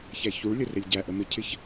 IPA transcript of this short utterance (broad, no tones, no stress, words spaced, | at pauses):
çæçuɭlʲə rɪlʲɟæʔə mɪcʰɪç